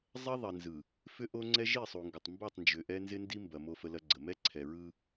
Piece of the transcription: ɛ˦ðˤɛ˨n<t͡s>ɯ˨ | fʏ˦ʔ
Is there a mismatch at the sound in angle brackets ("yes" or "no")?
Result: yes